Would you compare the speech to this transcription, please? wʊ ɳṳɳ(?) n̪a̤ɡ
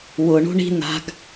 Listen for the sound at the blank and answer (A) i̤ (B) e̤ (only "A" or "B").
A